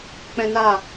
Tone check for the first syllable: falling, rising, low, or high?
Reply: high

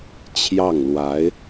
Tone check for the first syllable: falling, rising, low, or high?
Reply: falling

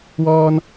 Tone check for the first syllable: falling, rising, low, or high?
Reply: high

